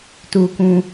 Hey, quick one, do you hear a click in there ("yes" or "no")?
no